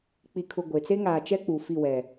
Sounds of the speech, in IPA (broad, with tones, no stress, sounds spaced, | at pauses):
k͡p i˨ kʰ ʊ˨ ɡʷ e˨ t͡s e˦ ŋ aː˨ t͡ʃ ɛ˦ k͡p u˨ f i˦˨ w ɛ˨